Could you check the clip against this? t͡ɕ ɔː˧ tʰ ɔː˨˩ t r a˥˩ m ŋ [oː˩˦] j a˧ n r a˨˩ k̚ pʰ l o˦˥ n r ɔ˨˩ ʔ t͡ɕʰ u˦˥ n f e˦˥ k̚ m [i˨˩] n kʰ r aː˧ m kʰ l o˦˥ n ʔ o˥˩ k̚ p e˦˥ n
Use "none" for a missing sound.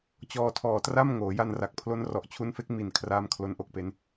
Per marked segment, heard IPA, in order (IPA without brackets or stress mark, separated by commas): oː˩˦, i˨˩